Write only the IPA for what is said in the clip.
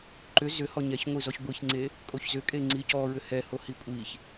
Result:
ǃ ʏ z ʏ h ɔ ɲ ɛ ç ŋʷ i z ɔ ç ɡʷ i ç ŋ͡ǀ e | kʼ o ç z ʏ kʼ e ŋ͡ǀ i c ɔ ɹ ʏ h ɛ h o h i kʷʼ i ç

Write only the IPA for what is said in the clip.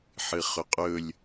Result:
ħ ɨ χ ɵ qʼ ɵ lʲ

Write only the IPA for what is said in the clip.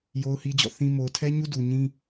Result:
j o˦ ʊ̯ h i˦ d͡ʑ ɔ̰˦˨ θ ĩ˦ m o˨ ʊ̯ tʰ ɛ˦ ɲ u˦ d u˨ ɲ ĩ˦

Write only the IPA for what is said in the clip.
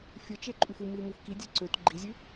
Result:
fʲ ə˞ t͡ʃ e ǃʼ ʉ f u m i m u f k i dʲ ɛ ǀ ø t ɡ͡ǃ i zʲ ʉ

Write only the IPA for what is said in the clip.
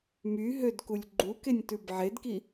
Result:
m y ɦ ø d k u lʲ ɡ͡ǃ u k e nʲ t ʉ b ʕ e d k i

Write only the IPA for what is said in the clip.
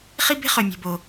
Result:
χ i˦ b e̤˦ χ œ˨ mʲ o̤˨ b o˨

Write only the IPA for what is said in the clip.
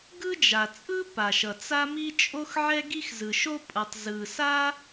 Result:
ɡ ɯ˥ d͡ʒ a˩ t͡sʼ ɯ˥ p a˩ ʃ ʌ˩ t͡s a˥ m i˥ t͡ʃʼ o˥ x ʕ ɛ˥ ɡ i˥ x z ɯ˩ ʃ o˥ pʼ ʌ˩ tˤ z ɯ˩ s a˥

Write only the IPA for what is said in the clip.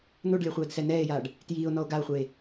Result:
n o ɖ lʲ a χʷ ɛː d s ɛ n ɛː e̯ j aː ɖ | t j iː o̯ n ɔ o̯ ɡ a o̯ χʷ eː

